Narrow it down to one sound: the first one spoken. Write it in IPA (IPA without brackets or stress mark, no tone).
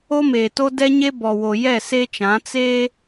o